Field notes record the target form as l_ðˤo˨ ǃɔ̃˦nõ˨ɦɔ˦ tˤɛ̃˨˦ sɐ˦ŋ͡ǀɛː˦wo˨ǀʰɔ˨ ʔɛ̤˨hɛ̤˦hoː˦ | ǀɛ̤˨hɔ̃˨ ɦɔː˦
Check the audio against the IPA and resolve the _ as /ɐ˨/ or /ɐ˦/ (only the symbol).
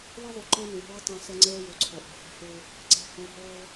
ɐ˦